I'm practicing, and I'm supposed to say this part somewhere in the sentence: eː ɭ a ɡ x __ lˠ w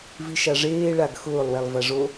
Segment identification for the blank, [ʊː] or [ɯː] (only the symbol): ʊː